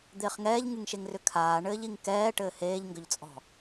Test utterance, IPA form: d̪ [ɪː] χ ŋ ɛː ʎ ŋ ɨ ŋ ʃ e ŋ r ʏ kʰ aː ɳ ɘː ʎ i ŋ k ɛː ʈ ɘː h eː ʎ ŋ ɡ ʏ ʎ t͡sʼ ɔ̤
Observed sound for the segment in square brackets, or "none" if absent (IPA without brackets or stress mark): ɪː